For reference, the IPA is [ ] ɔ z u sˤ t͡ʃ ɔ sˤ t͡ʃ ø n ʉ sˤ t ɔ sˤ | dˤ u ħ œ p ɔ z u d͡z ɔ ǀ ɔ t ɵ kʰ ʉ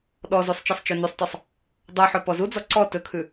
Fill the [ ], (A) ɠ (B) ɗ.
B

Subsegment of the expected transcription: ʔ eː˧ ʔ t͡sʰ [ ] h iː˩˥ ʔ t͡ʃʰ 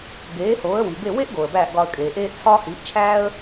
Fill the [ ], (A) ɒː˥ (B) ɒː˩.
A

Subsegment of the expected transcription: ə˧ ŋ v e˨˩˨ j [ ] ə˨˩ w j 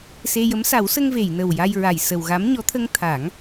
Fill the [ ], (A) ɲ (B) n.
B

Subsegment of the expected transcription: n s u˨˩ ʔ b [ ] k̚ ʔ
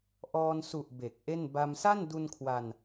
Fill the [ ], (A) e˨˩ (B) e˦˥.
A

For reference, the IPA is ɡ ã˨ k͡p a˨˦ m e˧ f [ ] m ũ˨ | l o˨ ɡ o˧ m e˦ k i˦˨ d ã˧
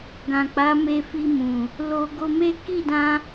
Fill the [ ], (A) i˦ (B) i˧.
B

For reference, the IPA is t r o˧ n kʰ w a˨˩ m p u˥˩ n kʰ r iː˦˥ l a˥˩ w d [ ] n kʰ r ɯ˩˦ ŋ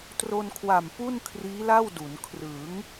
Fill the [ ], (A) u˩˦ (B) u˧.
A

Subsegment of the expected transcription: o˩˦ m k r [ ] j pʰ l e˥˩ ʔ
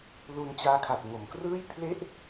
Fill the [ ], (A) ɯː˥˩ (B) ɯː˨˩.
A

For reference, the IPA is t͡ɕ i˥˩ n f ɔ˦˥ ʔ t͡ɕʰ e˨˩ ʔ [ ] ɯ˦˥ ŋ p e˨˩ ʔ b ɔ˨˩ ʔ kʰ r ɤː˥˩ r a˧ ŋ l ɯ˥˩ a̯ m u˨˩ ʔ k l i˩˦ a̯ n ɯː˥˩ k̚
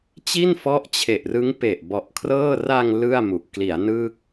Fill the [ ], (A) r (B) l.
A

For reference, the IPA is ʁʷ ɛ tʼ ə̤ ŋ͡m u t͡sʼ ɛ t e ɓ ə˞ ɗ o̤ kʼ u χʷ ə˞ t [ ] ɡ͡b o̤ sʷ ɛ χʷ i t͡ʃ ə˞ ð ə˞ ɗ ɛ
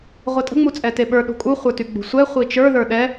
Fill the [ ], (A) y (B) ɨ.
A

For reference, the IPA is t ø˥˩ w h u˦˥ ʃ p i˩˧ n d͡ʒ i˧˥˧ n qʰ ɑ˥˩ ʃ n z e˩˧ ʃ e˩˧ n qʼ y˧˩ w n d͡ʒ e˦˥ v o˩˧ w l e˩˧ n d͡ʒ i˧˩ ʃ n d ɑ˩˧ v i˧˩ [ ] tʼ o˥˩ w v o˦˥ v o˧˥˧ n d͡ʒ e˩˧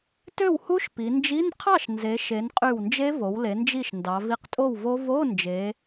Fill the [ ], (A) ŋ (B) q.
B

